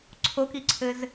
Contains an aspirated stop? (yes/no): yes